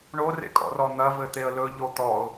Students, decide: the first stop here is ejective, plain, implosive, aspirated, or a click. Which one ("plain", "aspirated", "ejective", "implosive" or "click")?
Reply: ejective